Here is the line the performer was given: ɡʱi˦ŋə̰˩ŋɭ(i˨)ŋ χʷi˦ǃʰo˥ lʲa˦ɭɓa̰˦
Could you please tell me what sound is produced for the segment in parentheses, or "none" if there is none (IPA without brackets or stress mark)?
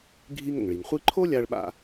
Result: i˩